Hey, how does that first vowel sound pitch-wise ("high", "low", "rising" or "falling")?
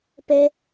high